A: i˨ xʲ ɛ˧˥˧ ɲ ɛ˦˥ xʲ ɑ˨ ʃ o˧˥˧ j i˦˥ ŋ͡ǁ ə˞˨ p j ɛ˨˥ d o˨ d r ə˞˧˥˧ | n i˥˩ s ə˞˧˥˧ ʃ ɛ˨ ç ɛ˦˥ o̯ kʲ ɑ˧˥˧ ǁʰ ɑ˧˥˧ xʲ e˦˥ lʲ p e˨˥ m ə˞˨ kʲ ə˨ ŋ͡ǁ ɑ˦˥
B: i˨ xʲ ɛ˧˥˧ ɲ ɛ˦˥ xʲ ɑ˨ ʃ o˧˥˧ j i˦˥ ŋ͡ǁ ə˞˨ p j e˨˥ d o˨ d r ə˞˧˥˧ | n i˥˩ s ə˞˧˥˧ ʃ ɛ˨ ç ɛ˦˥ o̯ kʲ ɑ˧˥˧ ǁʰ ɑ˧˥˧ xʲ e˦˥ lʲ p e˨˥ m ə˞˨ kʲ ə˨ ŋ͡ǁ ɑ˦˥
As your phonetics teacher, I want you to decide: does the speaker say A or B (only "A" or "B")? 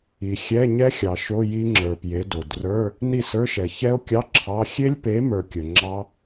B